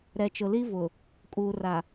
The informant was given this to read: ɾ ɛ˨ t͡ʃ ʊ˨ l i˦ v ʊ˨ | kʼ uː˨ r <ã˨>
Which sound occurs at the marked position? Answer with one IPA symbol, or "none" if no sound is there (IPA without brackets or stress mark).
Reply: a˨